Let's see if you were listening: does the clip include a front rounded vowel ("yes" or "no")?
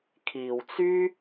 yes